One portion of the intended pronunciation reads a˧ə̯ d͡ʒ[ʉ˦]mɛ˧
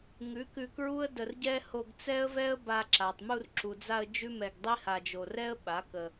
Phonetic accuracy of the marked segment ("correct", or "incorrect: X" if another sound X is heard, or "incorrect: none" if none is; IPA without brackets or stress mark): correct